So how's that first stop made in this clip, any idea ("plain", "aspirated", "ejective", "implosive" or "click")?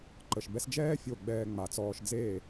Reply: click